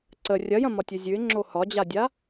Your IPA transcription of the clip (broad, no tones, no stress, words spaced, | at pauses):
ǀə rʲɐjɐ̃ mɒtʲʉzʲʉɪ̯ŋ͡ǁo hɒd͡ʑadʲa